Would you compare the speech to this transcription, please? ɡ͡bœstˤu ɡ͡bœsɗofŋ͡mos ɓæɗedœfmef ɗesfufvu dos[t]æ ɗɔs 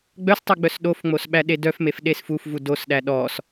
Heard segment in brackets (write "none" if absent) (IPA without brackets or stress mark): ɗ